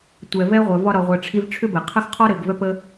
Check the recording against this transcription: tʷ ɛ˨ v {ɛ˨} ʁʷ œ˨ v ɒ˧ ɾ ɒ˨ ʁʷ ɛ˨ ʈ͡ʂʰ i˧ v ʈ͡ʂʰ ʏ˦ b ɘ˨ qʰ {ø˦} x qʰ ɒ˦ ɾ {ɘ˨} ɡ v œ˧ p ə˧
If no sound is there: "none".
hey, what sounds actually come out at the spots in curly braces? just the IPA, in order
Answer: ɛ˧, ə˦, ɘ˨

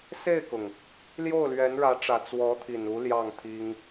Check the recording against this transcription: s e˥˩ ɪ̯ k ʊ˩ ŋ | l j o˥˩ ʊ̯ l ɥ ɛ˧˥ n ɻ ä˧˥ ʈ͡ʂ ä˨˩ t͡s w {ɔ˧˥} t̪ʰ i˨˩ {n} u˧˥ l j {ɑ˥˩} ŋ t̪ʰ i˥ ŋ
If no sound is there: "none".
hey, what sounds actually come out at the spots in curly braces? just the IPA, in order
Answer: ɔ˧˥, n, ɑ˥˩

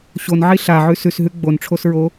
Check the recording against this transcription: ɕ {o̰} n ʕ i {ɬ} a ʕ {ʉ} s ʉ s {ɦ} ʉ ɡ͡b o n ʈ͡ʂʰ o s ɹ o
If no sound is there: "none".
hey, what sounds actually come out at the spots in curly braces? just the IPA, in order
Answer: o, ɬ, ʉ, ɦ

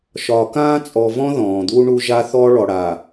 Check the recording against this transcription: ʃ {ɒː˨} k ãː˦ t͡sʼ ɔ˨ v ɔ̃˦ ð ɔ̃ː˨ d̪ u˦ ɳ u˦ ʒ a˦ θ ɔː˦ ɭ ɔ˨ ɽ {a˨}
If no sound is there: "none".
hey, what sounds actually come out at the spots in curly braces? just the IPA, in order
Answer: ɒː˨, a˨

